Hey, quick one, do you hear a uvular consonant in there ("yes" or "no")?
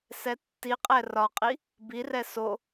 yes